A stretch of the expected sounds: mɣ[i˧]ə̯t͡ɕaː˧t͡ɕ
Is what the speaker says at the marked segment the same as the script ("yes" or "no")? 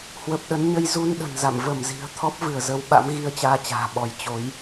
yes